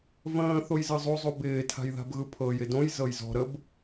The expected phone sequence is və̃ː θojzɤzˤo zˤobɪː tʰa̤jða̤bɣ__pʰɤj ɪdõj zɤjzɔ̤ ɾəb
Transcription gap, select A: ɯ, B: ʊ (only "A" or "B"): A